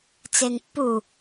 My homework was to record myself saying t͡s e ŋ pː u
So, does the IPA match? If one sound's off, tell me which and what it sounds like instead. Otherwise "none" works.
none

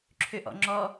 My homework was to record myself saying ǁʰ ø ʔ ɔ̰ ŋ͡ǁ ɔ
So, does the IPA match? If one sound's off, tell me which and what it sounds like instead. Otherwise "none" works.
none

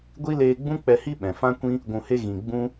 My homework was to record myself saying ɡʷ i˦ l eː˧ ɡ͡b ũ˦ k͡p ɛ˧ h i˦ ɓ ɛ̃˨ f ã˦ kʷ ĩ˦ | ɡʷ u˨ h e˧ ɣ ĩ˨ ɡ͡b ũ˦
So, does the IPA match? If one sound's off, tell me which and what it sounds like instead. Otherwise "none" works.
u˨ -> ũ˨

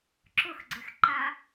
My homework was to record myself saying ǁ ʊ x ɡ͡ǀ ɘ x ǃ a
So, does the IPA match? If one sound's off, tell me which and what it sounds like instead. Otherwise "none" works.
none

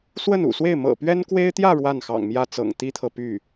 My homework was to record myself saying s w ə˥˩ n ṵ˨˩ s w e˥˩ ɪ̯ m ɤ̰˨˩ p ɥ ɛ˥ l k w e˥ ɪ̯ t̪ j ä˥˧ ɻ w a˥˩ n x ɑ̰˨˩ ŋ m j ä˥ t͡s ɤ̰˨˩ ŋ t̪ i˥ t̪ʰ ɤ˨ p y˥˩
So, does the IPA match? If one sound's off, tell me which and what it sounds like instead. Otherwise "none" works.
l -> n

